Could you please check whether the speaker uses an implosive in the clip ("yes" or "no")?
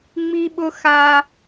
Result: yes